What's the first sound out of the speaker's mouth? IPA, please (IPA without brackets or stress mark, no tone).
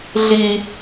ɮ